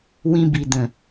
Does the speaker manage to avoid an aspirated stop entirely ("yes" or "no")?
yes